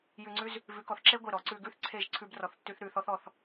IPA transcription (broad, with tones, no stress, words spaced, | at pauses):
jʉ˧ŋ͡ǀʉ˦z | vʉ˨˦kɔ˨θǁe˦ ɡʷe˦˨ɾɔ˨˦ ǀʉ˧ɡʉ˦θǀʰe˦˨ʒ ǀʰʉ˦brɔ˧θtːʉ˦θ ɾʉ˧ θɔ˦θɔ˧θ